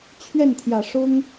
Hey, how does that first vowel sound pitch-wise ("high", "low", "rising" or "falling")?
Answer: falling